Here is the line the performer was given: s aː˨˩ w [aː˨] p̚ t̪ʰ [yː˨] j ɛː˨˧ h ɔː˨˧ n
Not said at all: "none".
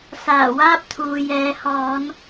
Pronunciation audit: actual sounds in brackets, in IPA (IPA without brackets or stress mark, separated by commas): aː˥, uː˨